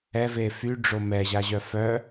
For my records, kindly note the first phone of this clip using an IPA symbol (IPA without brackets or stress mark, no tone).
ɛ